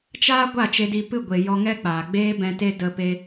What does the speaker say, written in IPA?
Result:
t͡ʃ aː˦ ɡʷ a˦˨ t͡ʃ e˧ d i˧ p ɨ˦˨ ɡʷ e˨ j ɔ˧ ŋ ɛ˦ k͡p aː˨ ɡ͡b eː˦ b ɛ̃˧ t e˦ d ə˧ p e˧

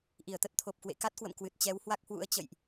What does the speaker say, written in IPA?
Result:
ʔ i˧˩ ə̯ t̪ ə˦˥ t̚ t̪ʰ o˨˩ p̚ k w ḛ˧˨ k a˦˥ t̚ k w ə̰˧˨ m k w ɨ˨˩ t̚ t͡ɕ ɛ˨˦ w h w a˦˥ k̚ h w ṵ˧˥ ə̯ t͡ɕ ə̰˧˨ j ʔ

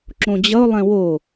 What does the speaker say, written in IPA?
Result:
ǁ õ d͡ʑ ʌ ʊ̯ lˠ ɛ̃ w o

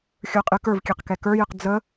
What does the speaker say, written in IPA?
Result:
xʲ ə˞ qʼ ɨ k ə˞ v kʲ ɛ q k ɛ k ə˞ j ɨ q d͡z ə

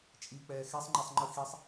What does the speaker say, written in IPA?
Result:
t͡ʃʼ i k͡p ɛː x e sˤ ŋ͡ǃ ɛ sˤ ŋ͡ǃ ɯ x i sˤ

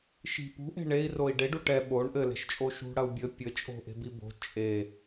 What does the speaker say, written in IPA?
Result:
ʃ i̤ p ṳ ʔ e̤ ɳ e i̯ r o i̯ ɖ e ɖ u ʈ ɛ ɓ o ɳ ʔ ɘ l ɛ̤ ʃ t͡ʃʼ o ʃ ṳ ɽ ɐ u̯ bʲ ɘ pʲ ɘ t͡ʃʼ o̤ ʔ e̤ b i b o̤ t͡ʃʼ e

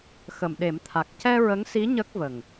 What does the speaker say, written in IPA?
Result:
x ə˨˩˨ m ɗ e˨˩˦ m t̪ʰ a˨˩ k̚ c ɛ˧ ɹ ə˧˥ ŋ s i˧˥ ɲ ə˦˥ k̚ v ə˨˩ ŋ

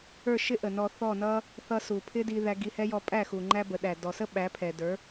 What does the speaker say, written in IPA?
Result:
ə˞˥˩ ʃ ɪ˥ ʔ ə˩ n ɔ˧ θ ɔ˥˩ n ʌ˥ | θ ʌ˧ s u˩ pʰ ɪ˥ d i˧ ð æ˧ ɡ i˧ h ɛ˥ j ɔ˧ pʼ æ˥˩ x u˩ ŋ͡ǃ æ˥ b ə˩˥ ɗ æ˩ d ɔ˩ s ə˥ ɓ æ˩˥ pʰ ɛ˩ d ə˞˩˥

